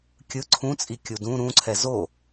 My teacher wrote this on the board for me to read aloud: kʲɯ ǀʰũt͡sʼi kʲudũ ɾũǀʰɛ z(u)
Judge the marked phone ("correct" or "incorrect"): incorrect